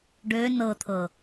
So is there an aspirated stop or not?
yes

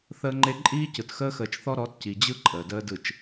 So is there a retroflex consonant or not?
no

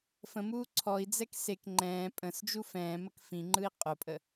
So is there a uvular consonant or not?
yes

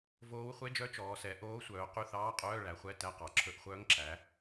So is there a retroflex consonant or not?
yes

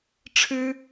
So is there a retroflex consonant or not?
yes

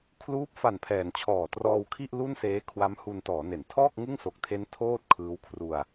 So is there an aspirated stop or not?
yes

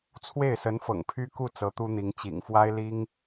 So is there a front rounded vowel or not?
yes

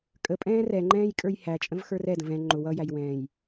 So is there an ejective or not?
yes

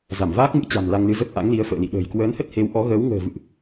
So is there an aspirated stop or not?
no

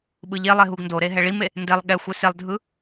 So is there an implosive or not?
yes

